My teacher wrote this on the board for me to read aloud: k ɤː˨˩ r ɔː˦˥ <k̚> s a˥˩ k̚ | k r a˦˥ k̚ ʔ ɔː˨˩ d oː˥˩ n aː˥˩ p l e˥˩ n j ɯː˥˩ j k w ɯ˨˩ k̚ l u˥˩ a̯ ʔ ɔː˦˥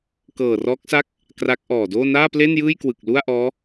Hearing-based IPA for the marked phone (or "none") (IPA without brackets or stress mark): k̚